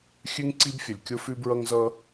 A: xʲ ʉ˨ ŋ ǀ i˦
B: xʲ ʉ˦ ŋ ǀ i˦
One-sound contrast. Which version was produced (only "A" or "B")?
B